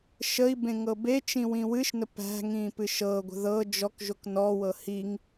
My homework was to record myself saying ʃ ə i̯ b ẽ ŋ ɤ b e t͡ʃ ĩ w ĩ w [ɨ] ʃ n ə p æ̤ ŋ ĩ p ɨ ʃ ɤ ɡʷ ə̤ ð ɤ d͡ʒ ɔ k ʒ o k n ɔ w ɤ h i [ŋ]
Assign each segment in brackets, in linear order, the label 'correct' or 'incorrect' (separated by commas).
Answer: correct, correct